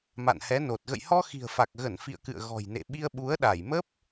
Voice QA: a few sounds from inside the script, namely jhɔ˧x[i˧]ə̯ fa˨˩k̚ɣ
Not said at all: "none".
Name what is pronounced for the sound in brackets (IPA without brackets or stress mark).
i̤˨˩